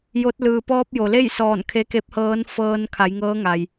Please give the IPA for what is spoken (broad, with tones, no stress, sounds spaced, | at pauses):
j o˧˥ t̚ l ɯː˩ p ɔː˧ p̚ j o˩ l e˥˨ j s ɔː˧˩ n kʰ e˧˥ k e˧˥ p̚ h ɤː˧˥ n f ɤː˧ n kʰ a˩˧ j ŋ ɤː˧˥ ŋ a˩ j